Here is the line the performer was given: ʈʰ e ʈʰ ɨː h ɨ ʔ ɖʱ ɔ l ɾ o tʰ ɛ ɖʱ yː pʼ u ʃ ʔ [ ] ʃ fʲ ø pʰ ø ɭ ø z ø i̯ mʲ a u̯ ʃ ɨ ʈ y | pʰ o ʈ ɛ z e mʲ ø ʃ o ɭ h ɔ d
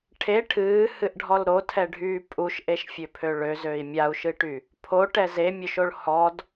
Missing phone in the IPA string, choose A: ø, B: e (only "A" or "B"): B